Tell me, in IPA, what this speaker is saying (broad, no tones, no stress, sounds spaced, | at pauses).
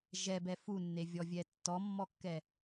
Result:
ʒ ɛ b ɛ f u nː e vʲ ɔ vʲ ɛ tː ɔ mː ɔ kː ɛ